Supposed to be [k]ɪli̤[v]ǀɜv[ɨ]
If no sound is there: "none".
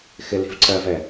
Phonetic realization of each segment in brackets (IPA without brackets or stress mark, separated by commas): x, v, ɛ